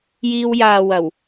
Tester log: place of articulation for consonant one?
palatal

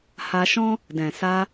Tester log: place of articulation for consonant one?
glottal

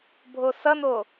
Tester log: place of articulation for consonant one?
labial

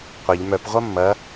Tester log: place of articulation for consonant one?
uvular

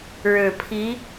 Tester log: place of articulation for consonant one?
retroflex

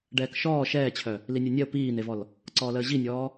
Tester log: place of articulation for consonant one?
retroflex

